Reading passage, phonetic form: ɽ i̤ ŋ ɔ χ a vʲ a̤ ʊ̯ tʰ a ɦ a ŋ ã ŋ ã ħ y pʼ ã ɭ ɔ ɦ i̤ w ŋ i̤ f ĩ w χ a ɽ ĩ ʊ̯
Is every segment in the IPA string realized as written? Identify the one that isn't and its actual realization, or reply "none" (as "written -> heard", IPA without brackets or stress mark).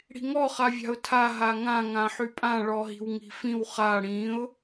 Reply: none